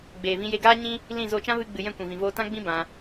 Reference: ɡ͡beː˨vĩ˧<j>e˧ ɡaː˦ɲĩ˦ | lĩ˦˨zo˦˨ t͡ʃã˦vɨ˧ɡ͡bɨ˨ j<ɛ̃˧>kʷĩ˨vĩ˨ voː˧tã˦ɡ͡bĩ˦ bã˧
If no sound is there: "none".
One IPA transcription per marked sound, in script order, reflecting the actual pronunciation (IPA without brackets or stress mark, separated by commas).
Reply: j, ɛ̃˦˨